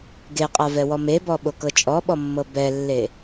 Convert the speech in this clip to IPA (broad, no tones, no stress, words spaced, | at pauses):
ɡeqʼavɛwɔ mebɔɓokɤ t͡ʃʼɔɓɔmːɤ bɛlːe